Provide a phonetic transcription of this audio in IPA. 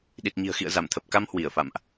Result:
ɗ i˨˩ t̚ ɲ i̤˨˩ ə̯ x ḭ˧˨ ə̯ z a˧˩ m t̪ʰ ə˨˩ p̚ k a˧ m h w i˧˩ ə̯ f a̰˧˨ m ʔ

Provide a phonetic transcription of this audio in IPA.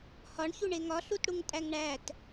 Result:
h ɒ ɳ ç u ɳ e ŋ ɒ ɬ u t ɽ u ŋ tʼ æ ŋ ɳ æ t

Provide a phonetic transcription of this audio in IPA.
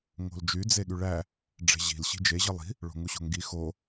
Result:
ŋ o̤ l d͡ʒ y d͡z e ɠ y ɭ æ | ɖ͡ʐ e̤ ʑ i̤ l ɕ i̤ d͡ʒ e ʑ ɯ lˠ i̤ | ɭ o̤ ŋ u ɕ o̤ ŋ ɡ i x o

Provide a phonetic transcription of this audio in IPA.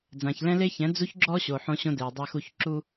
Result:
d͡z ã˨ ç l ɛ̃˦ l e˦ ç ɛ̃˨˦ d͡z u˦ ç ɡ͡ǁ ɔ˦ ɕ o˨ ħ õ˦ ɕ õ˦ d e˨ j dˤ a˦ x u˦ ç ǁ u˦

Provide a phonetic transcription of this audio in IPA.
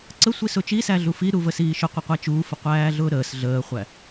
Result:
ǀ ə sʷ i s ʊ t͡ʃ i s æ ɮ u f i ɾ u v ə s iː ʃ ʊ qʷ ə qʷ æ t͡ʃ uː f ə qʷ æː ɮ ʊː ɾ əː s ɮ əː χʷ æ

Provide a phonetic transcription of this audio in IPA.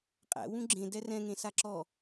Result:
qʼ æ̰ w ũ ɡ͡ǁ ẽ d ɛ r ɛ̃ ŋ ẽ s a ǁ ɔ

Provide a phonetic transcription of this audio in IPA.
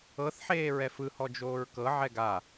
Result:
ɤ θ ħ eː ɹ ɛ f ɯ h ɔ d͡ʒ oː ɹ k ɤ ʕ ɛ ɡ a

